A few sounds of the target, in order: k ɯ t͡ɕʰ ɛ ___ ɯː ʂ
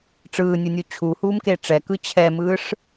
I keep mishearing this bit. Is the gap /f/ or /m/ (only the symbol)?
m